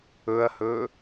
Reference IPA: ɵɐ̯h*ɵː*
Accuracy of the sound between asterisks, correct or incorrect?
correct